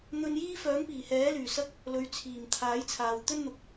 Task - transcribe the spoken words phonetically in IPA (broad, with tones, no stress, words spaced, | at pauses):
n̪ɵ˧njiː˥ fœː˨˥ŋpiː˨˩hɛː˨˥lyː˨˩ sɐ˥k̚ | lɵ˨ɥt͡sʰiː˨˩m t̪ʰaː˨˥jt͡sʰaː˨w t̪ɵ˥nn̪ʊ˨k̚